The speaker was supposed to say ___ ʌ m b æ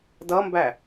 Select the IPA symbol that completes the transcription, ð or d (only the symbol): d